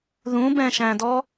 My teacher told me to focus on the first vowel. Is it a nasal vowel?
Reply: yes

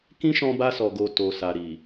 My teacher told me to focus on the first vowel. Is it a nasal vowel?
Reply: yes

